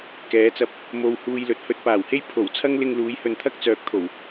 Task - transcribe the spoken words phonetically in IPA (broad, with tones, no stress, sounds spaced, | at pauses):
k ɛː˨˧ t͡s ɐ˧ p̚ | m o˧ w h uː˧ j l ɵ˨ t̚ h ɵ˧ t̚ p aː˨˩ w h e˥ j pʰ o˨˩ w t͡sʰ ɐ˥ ŋ l ɪ˧ ŋ l uː˨˧ j h ɵ˨ n t̪ʰ ɐ˥ k̚ t͡s œː˨ k̚ t̪ʰ o˨˩ w